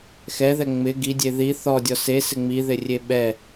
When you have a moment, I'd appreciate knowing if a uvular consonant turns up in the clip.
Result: no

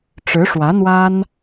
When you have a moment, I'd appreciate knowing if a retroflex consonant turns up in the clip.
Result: yes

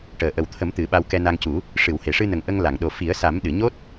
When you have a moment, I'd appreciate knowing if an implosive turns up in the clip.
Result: yes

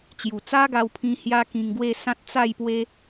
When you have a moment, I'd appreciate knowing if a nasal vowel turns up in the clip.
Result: yes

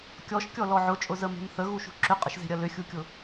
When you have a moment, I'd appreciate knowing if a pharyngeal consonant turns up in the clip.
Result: yes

